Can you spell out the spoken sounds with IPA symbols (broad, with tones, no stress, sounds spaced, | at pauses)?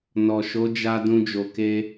n ɔ˨ ʃ o˨˦ d͡ʒ a˧ d ũ˧ d͡ʒ o˨ k e˧